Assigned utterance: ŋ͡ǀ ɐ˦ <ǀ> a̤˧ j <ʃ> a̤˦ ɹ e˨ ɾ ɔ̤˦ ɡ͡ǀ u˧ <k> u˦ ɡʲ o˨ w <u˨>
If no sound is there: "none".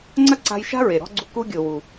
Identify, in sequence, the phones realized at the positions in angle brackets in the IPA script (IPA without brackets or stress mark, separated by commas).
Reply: ǀ, ʃ, k, u˨